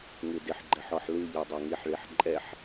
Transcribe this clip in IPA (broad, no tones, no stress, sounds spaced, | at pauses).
ŋ ɨ d ɪ ħ ɡ͡ǃ ɛ ħ ɔ ħ l ɨ ʎ ɛ dˤ ɛ ŋ i ħ ɭ i ħ ǃʼ ɛ ħ